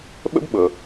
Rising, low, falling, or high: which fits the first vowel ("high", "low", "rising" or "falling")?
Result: high